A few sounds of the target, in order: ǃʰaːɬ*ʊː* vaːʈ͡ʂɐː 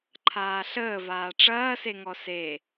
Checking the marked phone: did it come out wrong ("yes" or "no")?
yes